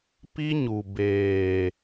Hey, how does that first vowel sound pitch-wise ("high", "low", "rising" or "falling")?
high